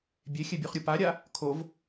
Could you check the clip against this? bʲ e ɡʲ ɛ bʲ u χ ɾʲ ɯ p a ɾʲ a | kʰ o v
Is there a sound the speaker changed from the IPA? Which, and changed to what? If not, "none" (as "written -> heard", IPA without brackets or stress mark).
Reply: ɡʲ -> xʲ